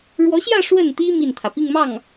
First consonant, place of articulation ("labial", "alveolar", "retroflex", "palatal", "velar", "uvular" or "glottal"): retroflex